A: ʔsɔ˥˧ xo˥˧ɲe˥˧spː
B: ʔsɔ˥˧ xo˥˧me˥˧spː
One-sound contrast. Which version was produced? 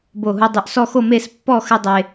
B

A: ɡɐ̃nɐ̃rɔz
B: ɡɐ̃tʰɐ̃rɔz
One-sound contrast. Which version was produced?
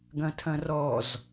B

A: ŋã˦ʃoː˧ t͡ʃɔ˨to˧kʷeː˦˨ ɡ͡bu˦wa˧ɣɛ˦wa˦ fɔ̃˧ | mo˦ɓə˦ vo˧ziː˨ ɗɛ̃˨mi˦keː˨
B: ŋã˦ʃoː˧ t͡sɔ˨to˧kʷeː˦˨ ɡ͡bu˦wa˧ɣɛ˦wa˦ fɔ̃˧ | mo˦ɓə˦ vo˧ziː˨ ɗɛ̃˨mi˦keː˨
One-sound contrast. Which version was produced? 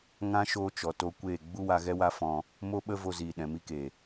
A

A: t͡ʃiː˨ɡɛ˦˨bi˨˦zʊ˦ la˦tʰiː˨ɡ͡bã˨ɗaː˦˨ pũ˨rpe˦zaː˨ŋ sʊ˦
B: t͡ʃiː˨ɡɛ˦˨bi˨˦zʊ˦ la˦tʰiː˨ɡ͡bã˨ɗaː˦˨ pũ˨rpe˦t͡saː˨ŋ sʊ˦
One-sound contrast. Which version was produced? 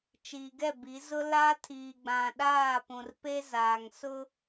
A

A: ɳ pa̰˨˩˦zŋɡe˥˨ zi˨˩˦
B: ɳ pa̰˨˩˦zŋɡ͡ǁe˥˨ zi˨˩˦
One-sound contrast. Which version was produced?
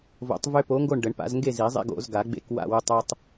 A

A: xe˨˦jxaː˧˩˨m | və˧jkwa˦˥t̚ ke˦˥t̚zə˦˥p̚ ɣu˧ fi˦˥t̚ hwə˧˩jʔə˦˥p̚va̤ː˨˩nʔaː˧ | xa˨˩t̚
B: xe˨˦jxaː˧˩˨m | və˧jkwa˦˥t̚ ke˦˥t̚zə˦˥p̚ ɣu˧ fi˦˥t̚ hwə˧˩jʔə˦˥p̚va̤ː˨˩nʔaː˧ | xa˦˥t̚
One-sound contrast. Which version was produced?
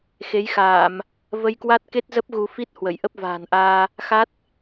B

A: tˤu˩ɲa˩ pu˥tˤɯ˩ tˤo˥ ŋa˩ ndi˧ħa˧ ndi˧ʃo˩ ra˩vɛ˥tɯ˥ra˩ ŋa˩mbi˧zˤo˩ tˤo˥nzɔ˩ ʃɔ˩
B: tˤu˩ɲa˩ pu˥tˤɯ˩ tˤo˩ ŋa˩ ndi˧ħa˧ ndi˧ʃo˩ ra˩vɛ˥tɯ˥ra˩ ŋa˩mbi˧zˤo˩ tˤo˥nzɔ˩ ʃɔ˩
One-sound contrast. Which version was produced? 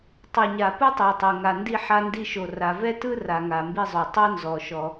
B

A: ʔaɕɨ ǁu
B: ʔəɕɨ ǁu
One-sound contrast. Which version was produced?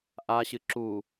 A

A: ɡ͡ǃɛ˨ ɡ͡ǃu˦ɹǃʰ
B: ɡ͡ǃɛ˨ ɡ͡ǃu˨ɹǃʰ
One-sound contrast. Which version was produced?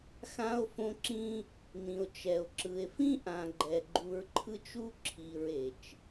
B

